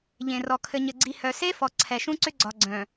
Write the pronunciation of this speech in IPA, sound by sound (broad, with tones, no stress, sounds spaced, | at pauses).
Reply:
ʎ ẽ˨ r ɔ˨ kʰ ɘ˨ ɲ ɘ˨ ɡ͡ǀ i˨ h œ˨ s e˦ f ɔ˨ ǀʰ ɛ˨ ʃ ũ˦ ǀ ʏ˦ ɡ͡ǀ ɒ˨ ɡ͡ǀ œ̃˨